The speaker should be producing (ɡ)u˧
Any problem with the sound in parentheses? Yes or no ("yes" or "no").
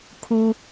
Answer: yes